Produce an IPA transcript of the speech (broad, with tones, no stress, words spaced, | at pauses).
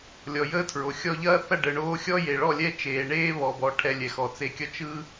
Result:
lʲɔ˨jəː˦tʰɹo˨ xʲɔ˧ʎɐː˦θɐ˦˨ ɖə˨ɳoː˦ xʲɔ˦je˨ɭɔ˦˨lʲɛ˦ t͡ʃeː˨ɳeː˦βɔ˨bɔ˨ ʈʰɛ˧lʲɛ˨ xɔ˨t͡se˧kʲʌ˦ t͡ʃɯ˦